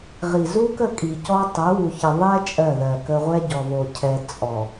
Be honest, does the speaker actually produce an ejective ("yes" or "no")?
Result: yes